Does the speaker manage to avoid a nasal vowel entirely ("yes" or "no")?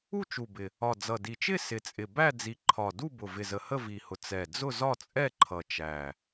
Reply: yes